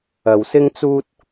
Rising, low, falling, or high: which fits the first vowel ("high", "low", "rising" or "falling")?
low